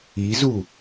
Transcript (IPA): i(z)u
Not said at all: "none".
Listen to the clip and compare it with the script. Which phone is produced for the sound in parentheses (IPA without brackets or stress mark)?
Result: z